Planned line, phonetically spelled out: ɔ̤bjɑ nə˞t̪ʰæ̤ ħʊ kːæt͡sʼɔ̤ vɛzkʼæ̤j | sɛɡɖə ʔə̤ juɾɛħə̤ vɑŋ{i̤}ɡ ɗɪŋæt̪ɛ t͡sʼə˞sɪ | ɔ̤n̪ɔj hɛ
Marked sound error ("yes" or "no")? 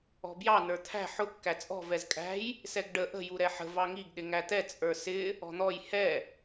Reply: yes